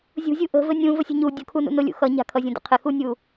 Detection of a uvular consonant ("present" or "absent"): present